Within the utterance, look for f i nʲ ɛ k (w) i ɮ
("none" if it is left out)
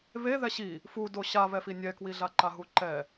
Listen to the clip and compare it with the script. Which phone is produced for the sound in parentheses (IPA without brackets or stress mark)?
w